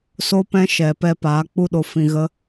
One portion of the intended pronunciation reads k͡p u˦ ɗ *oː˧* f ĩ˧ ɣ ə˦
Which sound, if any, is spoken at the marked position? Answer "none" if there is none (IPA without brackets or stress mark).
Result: o˧